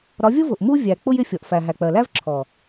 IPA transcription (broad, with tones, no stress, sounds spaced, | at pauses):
ɾ ɒ˨˦ vʲ ʊ˦ v ʊ˨ ʔ m u˦ vʲ æ˨ k͡p ʊ˦ j ɪ˦˨ fʲ ɔ˨ ʔ f æ˨ ɦ æ˨ k͡p ɜ˨ l æ˦ v ǁʰ ɔ˨